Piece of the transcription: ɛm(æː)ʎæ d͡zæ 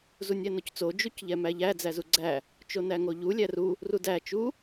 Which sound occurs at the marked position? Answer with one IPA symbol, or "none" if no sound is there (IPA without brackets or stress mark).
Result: æ